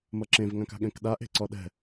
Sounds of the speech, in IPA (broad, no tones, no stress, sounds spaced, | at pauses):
m ʌ ǁ ẽ v ŋ ã k a̤ ɠ ɛ̃ k ɗ a ʔ e̤ ǀ ɔ ɗ ɛ̤